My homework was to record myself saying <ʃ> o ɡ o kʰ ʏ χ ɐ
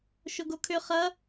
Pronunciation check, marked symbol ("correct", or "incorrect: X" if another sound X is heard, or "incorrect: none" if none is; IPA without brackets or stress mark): correct